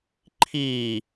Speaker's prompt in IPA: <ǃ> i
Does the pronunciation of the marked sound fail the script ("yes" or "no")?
yes